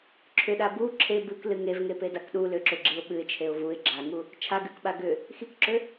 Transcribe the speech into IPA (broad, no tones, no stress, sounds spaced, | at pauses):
ǁʰ ʏ ɗ a b u ǁʰ e b ɨ k l ɨ ŋ e v ŋ e p e d a k ɗ u l ʏ ǁ ʏ ɡ͡ǁ i ʊ̯ ɓ ɨ ɪ̯ t͡ʃʰ e ʊ̯ v u ɪ̯ ɡ͡ǁ a ŋ u | t͡ʃʰ a ɡ ɨ k ɓ a ɡ ʏ | x i k ǁ ʏ